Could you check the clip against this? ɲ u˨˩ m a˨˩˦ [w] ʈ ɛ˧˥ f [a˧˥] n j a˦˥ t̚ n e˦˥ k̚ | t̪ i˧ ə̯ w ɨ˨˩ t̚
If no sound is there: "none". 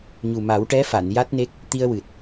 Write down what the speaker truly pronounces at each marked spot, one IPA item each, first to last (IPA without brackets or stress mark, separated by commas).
w, a˨˩˨